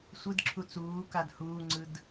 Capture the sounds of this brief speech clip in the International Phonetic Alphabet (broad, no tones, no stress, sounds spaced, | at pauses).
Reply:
sʷ ɯ d ǁʰ u t͡s uː k a d h uː ŋ͡ǀ ɯ d